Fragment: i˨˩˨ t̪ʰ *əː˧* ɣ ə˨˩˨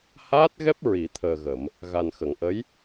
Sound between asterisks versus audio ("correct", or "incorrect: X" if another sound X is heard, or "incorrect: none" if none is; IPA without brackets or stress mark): incorrect: əː˨˩